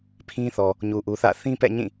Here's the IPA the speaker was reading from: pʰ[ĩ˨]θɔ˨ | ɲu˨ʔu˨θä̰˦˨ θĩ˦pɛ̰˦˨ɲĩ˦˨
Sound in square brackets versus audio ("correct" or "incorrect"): incorrect